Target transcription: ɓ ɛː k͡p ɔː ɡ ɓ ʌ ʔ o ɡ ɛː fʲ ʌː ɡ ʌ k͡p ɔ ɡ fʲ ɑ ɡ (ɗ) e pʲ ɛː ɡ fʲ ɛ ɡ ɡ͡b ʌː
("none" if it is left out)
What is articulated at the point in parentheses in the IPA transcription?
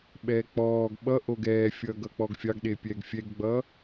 ɗ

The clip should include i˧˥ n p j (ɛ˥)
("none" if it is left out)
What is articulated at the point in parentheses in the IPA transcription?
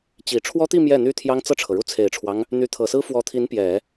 ɛ˨˩˦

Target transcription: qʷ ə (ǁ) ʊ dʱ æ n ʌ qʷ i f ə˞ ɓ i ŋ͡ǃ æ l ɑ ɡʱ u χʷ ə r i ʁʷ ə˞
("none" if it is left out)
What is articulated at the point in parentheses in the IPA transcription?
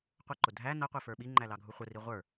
ǃ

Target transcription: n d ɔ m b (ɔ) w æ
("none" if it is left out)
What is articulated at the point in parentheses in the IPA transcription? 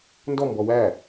ɔ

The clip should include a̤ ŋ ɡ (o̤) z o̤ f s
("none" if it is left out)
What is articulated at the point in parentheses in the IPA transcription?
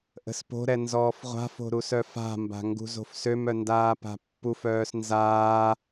ṳ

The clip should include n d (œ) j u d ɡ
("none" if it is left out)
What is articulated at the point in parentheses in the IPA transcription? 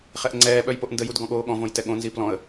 ə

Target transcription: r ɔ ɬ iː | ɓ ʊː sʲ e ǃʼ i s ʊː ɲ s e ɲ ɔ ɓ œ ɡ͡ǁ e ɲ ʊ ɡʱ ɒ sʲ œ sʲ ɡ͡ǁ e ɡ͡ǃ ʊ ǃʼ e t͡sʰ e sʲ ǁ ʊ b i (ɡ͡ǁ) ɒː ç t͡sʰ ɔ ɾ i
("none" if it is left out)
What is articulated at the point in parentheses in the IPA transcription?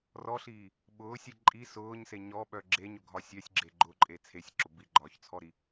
ɡ͡ǃ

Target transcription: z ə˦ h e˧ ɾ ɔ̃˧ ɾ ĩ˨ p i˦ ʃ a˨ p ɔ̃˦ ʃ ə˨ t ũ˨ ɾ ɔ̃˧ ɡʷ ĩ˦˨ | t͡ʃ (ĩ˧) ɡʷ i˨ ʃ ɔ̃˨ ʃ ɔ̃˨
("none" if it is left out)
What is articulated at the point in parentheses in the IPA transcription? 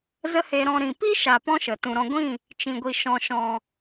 ĩ˨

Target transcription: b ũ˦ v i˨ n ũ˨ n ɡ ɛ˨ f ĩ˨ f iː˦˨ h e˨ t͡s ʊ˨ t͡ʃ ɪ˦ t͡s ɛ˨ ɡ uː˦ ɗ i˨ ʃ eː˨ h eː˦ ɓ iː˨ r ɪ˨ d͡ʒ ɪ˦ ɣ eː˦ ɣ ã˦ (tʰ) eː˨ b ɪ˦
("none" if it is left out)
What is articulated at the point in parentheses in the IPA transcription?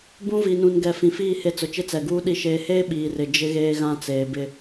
t͡s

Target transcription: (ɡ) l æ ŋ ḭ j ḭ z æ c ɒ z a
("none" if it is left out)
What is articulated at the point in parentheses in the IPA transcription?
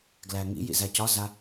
ɡ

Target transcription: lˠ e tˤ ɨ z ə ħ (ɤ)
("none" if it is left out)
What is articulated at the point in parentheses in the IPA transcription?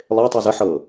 ɤ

